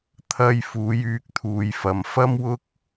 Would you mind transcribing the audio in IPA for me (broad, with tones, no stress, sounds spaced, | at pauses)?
t̪ʰ ɐ˧ j f uː˨˧ j yː˧ k̚ t̪ʰ uː˨ j f ɐ˨ m f ɐ˥ m w ʊ˥ k̚